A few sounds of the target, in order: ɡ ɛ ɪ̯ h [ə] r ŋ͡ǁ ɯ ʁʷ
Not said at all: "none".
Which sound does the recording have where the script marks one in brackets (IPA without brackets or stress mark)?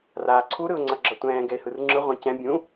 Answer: ɯ